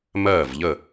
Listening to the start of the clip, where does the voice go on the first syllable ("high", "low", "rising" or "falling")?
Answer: falling